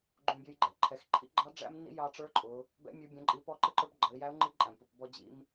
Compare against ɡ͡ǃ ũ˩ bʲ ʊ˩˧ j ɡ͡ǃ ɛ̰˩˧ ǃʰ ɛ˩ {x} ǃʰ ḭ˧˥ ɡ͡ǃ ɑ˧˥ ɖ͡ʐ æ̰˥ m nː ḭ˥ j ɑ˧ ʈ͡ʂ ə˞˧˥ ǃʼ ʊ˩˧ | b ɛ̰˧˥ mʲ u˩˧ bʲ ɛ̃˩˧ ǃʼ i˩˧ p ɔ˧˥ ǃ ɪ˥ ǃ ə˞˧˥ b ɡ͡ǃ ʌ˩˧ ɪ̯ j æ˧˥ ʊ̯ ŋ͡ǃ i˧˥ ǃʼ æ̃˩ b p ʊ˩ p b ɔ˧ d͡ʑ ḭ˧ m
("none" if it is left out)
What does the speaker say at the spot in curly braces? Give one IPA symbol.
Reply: x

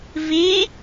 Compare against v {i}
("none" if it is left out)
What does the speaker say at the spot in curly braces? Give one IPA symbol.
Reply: i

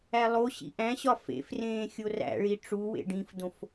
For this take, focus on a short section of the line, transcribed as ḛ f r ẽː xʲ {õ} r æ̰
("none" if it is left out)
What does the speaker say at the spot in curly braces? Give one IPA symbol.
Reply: o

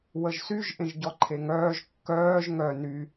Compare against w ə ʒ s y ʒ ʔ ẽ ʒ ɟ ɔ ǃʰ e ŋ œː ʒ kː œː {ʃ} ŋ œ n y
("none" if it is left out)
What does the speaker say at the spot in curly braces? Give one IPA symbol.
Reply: ʒ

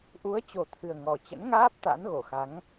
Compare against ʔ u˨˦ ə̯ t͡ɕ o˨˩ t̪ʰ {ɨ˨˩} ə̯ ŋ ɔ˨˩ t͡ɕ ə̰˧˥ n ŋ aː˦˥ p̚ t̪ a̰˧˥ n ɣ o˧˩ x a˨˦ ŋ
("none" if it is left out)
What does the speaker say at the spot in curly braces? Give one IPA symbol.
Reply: ɨ˨˩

